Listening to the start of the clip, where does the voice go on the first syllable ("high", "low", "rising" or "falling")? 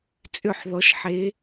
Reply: falling